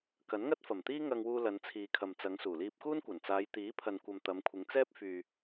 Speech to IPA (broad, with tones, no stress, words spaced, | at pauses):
kɐ˨˥nŋɐ˥t̚fɐ˨˩mt̪iː˥ ŋɐ˧ŋwuː˧ lɐ˨˧nt͡sʰiː˨kʰɐ˨mt͡sɐ˨˧ŋ suː˨˩liː˧p̚kuː˥nkʷɐ˨˩n t͡saː˨˧jt̪iː˨˥pʰɐ˨nkʷɐ˨m t̪ɐ˨˧mkʷʰɪ˨˧ŋt͡sɛː˥p̚ fyː˨